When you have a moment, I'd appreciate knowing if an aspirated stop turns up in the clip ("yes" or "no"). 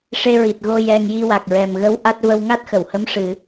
no